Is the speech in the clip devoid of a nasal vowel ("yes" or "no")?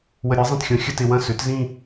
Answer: no